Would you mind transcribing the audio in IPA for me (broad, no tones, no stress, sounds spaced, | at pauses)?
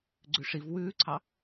ɡ͡ǀ ʉ ʂ i v w ʉː ǀʰ ɑ